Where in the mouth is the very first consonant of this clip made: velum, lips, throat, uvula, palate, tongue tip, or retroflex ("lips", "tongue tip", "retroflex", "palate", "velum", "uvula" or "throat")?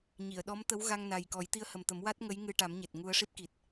palate